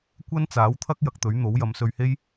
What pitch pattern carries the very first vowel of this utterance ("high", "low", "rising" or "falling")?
high